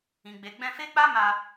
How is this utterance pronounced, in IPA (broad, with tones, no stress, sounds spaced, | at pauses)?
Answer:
ĩ˨ ɡ͡b e˨ ɡ͡b ɛ̃˧ f e˦ k͡p a˦ m a˧